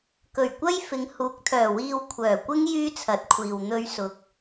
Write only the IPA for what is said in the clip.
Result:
kɵ˨˩ɥkʷɐ˥jfɪ˨˧ŋ huː˨˥k̚t̪ʰœː˨˩wiː˧w kʷʰœː˨˩kʷɪ˥ŋ jyː˥t͡sʰɐ˨˥t̚kʷʰiː˨w n̪ɵ˥ɥsʊ˧k̚

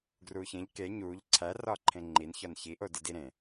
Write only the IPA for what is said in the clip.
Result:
ɡruːçẽʎ ke ɲuːʎ ǀʰæ rɒːǃʰẽŋ͡ǃinçɒn çiʔo didiɾẽ

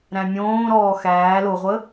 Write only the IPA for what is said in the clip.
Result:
ɾæ̃mʲõː ɾɔːxæː loʁʷə

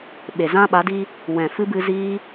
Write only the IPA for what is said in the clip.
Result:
ɓe˨zã˦ɓa˨˦diː˦ | wɛ̃˨fɨ˦bɨ˧ ziː˦

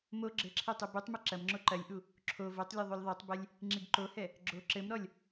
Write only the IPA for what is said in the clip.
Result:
mo ɡ͡ǁɘǁʰe tˤubutˤmɨ ǁɐmŋ͡ǁo ǃɐlʲʔu | ǁʰo votˤlʲo ðˤulʲðˤetˤbɛlʲ | ŋ͡ǁiɡǃohɛ | ɡ͡ǁo ǁɘmɾɔlʲ

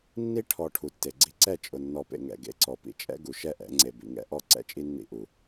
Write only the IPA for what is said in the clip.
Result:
nːi˦ ʈʰɔ˨ ʈʰu˨tːe˨ɡ͡ǀi˦ ǀɛ˦˨ t͡ʃʼʊ˨nːɔ˨pḛ˨ŋɛ̰˨ ɡḛ˨ǀɔ˨pḭ˨ t͡ʃʼɛ̰˦ɡu˨ ʃɛ˦ʔɛ̰˨˦ ŋ͡ǀe˨bḭ˨ŋɛ̰˨˦ ʔɔ˦ ǀɛ̰˦t͡ʃʼi˦nːḭ˦ ʔu˨

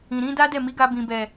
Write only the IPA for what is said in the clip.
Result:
ĩ˨ɾĩ˨˦da˦dɛ˦˨ mi˨˦ɡa˧ bĩ˨bɛ˨

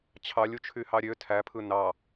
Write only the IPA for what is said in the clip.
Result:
t͡ɕʰɑlʲut͡ʃʰyhɑ ɾʲø tʰæpʰɯ nɑ

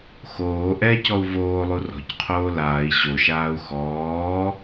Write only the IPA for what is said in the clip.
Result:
xoː ʔɛcɔu̯ voːlˠu rɔ̤cqʰoː laːi̯ ɕoʃaːu̯ xɔː

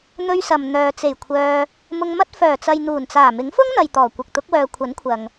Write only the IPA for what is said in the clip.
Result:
n̪ɵ˧ɥsɐ˨m n̪œː˨ t͡se˨˩j kʷʰœː˧ | mʊ˧ŋmɐ˥t̚ fœː˨˩t͡sɐ˨jn̪uː˨˩nt͡saː˨˩ mɪ˨˥ŋfʊ˥ŋn̪ɐ˨j t̪ɔː˨˩kʷɪ˨k̚t̪ʊ˨˥k̚wœː˨ kʷʰɐ˨˥nkʷʰɐ˨ŋ

